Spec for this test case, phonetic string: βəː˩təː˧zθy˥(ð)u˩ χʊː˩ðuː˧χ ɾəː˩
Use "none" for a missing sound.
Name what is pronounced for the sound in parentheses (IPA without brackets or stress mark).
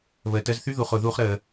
ð